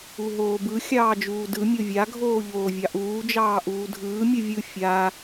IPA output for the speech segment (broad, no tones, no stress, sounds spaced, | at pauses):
u ɦ oː b ɯ xʲ ɑː d͡ʒ uː d ɯ mʲ o vʲ a ɡʱ oː ʎ oː vʲ ɑ ʔ uː d͡ʒ ɑː ʔ uː dʱ ɯː mʲ ɯ vʲ ɯ fʲ a